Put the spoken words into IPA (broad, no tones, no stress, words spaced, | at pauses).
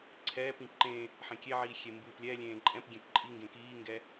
ǀʰɛːpĩ ǃẽ | ħẽkʲeʕiː xʲembɯːplʲɛlʲẽː ǃʼɛ̃pɡʲẽp ǃʼiŋɡẽ kiːŋɡɛ